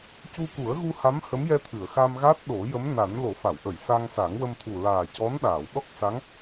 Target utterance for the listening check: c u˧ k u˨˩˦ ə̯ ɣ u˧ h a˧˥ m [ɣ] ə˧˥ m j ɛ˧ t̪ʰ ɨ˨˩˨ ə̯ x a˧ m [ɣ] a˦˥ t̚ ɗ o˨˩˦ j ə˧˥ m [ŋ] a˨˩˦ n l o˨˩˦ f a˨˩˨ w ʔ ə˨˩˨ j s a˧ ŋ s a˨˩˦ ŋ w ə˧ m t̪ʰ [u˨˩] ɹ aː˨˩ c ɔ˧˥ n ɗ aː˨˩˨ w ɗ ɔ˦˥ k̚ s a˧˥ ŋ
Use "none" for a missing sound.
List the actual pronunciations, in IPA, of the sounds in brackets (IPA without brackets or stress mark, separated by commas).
h, ɣ, n, u˨˩